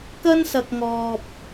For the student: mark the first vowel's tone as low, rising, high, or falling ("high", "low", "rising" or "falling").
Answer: high